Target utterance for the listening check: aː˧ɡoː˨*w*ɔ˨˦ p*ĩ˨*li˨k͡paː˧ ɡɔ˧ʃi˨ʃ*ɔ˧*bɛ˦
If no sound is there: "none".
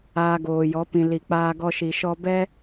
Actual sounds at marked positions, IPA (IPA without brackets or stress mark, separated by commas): j, ĩ˨, ɔ˧